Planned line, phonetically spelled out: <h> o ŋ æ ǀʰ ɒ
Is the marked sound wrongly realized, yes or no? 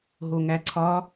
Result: yes